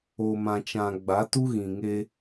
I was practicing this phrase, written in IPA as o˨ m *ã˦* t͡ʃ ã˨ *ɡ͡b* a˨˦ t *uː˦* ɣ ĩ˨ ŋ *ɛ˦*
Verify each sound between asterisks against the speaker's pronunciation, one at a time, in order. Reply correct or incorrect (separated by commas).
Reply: incorrect, correct, incorrect, incorrect